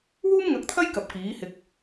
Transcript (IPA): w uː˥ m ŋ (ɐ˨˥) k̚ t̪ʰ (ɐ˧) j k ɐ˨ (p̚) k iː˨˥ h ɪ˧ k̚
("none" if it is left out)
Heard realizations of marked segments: ɐ˨˥, ɐ˥, p̚

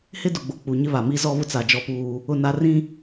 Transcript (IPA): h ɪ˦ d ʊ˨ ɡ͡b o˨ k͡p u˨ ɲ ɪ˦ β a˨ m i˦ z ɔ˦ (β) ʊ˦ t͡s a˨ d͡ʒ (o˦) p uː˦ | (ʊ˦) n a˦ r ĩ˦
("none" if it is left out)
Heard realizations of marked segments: β, ɔ˦, ʊ˦˨

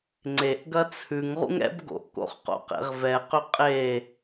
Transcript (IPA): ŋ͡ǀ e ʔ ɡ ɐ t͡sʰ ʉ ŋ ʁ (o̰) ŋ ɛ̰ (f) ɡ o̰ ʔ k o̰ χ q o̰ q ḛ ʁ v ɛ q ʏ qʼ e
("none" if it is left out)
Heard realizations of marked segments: ṵ, b

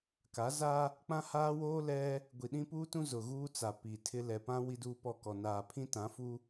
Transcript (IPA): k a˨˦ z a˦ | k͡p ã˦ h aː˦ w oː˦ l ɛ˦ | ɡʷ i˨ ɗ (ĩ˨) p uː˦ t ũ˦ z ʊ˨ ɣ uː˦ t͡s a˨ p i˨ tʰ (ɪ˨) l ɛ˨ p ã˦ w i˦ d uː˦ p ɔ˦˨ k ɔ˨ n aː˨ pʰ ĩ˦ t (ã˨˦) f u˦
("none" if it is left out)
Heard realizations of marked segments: ĩ˦, ɪ˦, ã˨˦

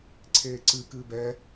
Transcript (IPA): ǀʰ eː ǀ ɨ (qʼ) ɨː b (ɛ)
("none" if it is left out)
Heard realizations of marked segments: k, ɛ

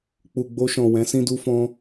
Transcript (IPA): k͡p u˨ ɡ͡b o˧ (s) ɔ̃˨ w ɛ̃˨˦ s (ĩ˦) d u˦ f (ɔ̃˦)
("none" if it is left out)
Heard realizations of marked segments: ʃ, ĩ˦, ɔ̃˦

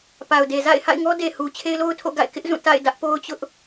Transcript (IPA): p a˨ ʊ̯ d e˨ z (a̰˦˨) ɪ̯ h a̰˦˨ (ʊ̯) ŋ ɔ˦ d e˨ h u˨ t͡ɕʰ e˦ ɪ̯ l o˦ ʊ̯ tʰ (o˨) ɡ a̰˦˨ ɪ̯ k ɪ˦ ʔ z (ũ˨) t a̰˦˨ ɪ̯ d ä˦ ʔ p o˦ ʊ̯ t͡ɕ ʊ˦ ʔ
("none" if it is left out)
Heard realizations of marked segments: a̰˦˨, ɪ̯, o̰˦˨, ũ˦˨

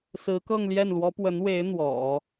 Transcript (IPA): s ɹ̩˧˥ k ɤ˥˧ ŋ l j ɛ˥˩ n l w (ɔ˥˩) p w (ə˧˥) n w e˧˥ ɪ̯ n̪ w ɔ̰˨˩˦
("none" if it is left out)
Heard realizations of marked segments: ɔ˧˥, ə˧˥

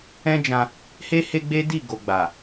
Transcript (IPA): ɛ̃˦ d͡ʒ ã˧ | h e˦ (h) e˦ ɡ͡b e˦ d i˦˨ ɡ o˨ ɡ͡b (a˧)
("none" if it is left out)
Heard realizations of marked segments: h, a˨

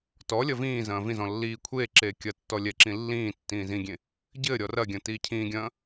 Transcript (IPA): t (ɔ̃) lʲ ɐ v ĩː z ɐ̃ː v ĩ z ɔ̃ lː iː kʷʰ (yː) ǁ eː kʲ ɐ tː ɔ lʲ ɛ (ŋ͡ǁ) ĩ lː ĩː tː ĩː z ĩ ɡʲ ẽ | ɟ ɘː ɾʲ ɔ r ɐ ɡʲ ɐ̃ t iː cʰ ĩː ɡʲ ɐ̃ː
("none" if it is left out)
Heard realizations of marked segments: ɔ, eː, ǁ

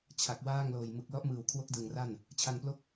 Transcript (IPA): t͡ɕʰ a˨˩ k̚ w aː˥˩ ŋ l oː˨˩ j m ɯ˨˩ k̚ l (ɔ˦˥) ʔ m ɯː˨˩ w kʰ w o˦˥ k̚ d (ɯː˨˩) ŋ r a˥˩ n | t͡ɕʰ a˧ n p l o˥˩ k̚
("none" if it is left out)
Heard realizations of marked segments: ɔ˦˥, ɯ˨˩

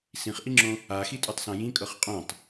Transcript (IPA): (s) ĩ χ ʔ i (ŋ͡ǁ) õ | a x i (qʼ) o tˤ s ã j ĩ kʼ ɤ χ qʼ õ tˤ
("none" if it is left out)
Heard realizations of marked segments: s, ŋ͡ǁ, tʼ

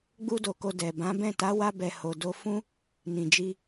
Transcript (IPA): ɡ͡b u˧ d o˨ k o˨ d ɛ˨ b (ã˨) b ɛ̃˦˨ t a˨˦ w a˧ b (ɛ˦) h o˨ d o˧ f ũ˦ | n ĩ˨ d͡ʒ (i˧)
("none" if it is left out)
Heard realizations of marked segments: ã˨˦, ɛ˨, i˧

